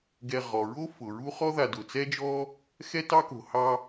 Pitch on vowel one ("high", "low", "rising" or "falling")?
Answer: low